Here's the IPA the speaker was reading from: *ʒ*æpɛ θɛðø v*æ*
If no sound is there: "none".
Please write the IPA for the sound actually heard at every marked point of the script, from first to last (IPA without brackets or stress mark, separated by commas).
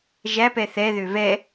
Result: ʒ, ɛ